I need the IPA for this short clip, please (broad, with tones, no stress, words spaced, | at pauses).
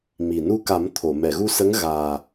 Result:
mi˨˩ nu˧ka˨˩˦m t̪ʰo˨˩˨ mɛ˨˩˨ɣu˧sə˧˥ŋ ɣaː˨˩